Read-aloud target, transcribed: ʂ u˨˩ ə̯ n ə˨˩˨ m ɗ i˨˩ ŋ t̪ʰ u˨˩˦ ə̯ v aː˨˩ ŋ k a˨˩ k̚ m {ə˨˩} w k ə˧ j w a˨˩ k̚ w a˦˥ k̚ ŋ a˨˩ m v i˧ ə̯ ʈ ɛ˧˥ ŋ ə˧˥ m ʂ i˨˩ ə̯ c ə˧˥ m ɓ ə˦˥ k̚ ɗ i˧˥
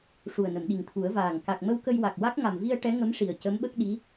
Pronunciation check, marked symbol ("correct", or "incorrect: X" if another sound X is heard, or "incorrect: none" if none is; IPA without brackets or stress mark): incorrect: ə˧